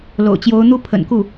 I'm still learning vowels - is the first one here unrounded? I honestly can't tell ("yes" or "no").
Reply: no